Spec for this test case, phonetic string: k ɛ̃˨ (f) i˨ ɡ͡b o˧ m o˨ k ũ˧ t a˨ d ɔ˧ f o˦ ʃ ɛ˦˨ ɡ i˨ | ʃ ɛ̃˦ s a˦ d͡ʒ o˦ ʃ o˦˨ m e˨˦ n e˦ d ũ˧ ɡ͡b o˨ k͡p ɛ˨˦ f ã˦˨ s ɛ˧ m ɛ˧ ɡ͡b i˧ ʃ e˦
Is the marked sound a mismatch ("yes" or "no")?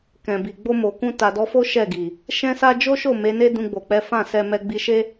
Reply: yes